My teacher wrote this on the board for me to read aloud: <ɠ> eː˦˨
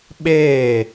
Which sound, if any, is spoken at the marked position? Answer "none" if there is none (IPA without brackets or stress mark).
ɓ